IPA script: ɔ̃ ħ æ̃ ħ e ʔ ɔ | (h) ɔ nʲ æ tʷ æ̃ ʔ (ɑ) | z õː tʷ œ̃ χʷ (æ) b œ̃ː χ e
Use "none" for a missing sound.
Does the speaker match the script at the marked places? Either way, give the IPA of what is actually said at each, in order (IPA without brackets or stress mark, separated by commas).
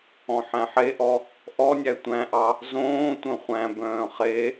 ʔ, ɑ, æ̃